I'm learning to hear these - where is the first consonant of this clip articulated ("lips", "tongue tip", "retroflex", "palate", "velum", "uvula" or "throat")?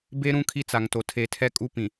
lips